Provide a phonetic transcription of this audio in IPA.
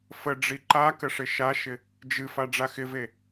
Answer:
f ə ɖ͡ʐ i ǃ a k ə ʂ ɪ ʃ a ʃ ɪ | d͡ʒ ɨ f a ɖ͡ʐ a x ɪ v e

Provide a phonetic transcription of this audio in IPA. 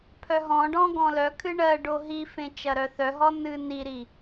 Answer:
pʰ œ ɦ ɔ̃ ɖ ɔ̃ ɡ ɔ̃ l œ kʰ ɨ ɳ ɜ ɖ o ɦ i f ẽ t͡ʃ ɐ ɾ œ θ œ ɦ ɔ n ɨ n i ɾ i

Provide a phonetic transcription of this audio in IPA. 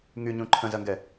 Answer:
ŋ y ɲ ũ ǃʰ ə̃ z ɐ ŋ ɡ ɛ

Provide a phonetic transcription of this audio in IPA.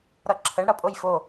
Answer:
ɾ ʌ ǁʰ ə ɳ ɽ ʌ pʼ o j f o

